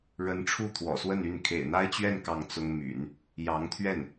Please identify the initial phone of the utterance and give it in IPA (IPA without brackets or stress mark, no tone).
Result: ɻ